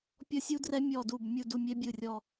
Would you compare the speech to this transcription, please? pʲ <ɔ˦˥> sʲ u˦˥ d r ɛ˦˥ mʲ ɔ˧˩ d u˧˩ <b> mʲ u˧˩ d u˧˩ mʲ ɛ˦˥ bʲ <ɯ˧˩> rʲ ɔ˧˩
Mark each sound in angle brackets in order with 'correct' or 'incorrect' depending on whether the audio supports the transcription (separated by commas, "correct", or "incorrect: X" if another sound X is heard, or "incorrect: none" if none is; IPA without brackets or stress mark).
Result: correct, correct, correct